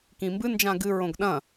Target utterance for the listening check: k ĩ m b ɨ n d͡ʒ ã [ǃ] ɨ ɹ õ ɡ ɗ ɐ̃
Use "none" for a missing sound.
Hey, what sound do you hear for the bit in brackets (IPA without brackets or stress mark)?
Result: ɡ